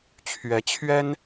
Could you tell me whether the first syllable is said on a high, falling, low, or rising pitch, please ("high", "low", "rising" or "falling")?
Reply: rising